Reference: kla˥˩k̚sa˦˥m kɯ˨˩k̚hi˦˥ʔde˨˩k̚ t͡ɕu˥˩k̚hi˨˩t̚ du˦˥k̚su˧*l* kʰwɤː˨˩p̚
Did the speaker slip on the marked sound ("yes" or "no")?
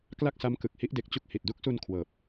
yes